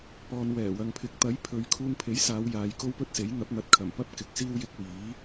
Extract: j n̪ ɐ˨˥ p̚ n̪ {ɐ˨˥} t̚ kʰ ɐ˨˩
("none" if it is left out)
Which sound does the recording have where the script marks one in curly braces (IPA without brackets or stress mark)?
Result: ɐ˨˥